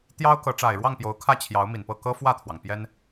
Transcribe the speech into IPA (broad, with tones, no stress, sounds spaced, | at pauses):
t̪ j ɑ˥ ʊ̯ k ɤ˧˥ ʈ͡ʂ a˨˩ ɪ̯ ɻ w ɑ˥˩ ŋ p j o˧˥ ʊ̯ kʰ ä˥˩ t͡ɕʰ j ɑ˧˥ ʊ̯ m i˨˩ n p ɤ˥˩ k ɤ˥ f w ä˥˩ t̪ʰ w ɑ˩ ŋ p j ɛ˥ n